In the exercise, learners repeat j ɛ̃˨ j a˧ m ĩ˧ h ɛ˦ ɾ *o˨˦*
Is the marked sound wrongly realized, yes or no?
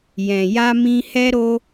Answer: yes